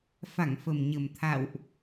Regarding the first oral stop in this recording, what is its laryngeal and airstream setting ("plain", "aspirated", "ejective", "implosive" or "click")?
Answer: aspirated